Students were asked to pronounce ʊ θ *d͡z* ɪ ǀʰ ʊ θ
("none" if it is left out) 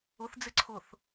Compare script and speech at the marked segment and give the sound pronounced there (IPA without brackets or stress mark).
d͡z